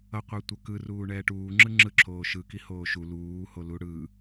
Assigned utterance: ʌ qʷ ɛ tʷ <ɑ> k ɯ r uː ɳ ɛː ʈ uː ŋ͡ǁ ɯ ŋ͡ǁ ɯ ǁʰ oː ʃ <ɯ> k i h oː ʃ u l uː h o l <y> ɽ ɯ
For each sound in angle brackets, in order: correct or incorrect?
incorrect: ʌ, correct, incorrect: u

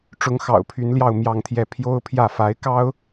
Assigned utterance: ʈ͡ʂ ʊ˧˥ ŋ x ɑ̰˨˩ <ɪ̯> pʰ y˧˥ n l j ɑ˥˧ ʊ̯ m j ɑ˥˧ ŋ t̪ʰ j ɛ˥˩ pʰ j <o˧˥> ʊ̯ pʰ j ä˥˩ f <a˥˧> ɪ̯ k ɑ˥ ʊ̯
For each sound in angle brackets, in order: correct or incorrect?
incorrect: ʊ̯, incorrect: o˥, incorrect: a˧˥

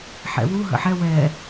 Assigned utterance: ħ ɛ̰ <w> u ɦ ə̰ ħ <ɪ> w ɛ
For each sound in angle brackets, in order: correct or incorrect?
correct, incorrect: ɛ

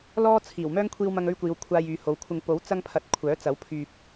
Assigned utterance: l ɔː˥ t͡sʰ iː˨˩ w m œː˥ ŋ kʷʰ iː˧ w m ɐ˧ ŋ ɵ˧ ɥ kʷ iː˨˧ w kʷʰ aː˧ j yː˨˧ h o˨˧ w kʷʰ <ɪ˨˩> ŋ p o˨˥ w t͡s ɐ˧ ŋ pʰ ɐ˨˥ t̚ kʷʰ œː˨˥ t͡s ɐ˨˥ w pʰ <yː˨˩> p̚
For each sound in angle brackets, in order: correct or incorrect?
incorrect: ɪ˧, incorrect: yː˨

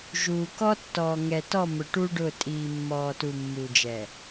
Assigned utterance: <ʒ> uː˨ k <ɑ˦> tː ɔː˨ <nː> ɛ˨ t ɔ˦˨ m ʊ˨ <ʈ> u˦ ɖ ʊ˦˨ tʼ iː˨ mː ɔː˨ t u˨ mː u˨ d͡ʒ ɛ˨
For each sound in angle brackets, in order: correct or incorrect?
correct, incorrect: ɔ˦, incorrect: ŋ, correct

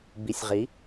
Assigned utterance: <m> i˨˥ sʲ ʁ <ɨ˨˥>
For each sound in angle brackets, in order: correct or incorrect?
incorrect: b, incorrect: i˨˥

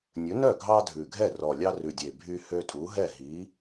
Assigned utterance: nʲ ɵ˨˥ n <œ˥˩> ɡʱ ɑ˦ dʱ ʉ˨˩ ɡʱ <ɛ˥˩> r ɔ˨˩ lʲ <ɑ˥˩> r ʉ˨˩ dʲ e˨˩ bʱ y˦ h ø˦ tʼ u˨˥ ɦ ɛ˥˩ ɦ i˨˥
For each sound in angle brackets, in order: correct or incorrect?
correct, correct, incorrect: ɑ˦

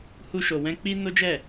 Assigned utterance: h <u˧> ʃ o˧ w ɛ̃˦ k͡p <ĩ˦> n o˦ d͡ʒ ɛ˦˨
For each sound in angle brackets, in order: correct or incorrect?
incorrect: u˦, incorrect: i˦

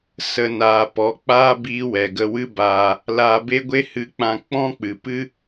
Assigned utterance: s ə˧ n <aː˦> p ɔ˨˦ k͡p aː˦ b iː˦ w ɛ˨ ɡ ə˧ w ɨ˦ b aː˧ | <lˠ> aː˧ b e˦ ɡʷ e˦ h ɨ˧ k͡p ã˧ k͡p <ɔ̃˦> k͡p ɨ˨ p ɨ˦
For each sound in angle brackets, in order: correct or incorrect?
incorrect: aː˨, incorrect: l, correct

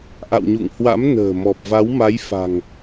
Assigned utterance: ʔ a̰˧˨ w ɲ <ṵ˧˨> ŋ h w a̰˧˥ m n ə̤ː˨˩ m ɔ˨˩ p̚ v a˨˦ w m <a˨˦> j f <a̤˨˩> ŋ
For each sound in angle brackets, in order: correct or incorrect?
correct, correct, correct

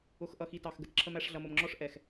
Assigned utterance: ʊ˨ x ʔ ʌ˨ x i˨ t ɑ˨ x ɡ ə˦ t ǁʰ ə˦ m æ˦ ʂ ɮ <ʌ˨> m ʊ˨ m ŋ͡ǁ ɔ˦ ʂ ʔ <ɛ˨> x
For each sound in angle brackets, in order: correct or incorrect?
correct, correct

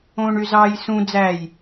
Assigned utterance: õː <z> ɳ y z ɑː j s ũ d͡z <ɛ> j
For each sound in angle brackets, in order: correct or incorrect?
incorrect: none, incorrect: æ

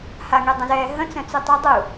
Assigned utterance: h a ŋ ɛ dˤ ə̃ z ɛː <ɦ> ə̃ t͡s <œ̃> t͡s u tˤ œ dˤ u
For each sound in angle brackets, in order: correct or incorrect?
correct, correct

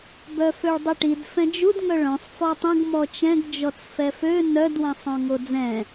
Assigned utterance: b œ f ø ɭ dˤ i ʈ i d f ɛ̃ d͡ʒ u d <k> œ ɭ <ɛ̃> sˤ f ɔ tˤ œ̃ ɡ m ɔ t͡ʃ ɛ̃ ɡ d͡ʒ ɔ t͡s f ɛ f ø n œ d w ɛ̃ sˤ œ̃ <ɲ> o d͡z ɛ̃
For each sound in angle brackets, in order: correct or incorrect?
incorrect: ŋ, incorrect: œ̃, incorrect: ŋ

